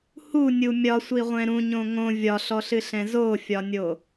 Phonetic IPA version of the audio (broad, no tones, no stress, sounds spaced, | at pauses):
h u nʲ u mʲ ɒ sʷ i ʁʷ ɛ̃ ɾ ũ ɲ õ ŋ õ vʲ ɒ ɬ ɔ ɬ ɨ ɬ ɛ̃ z o fʲ ɒ nʲ o